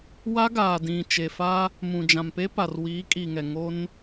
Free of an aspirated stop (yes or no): yes